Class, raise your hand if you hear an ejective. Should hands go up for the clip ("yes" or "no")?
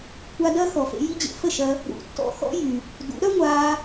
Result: no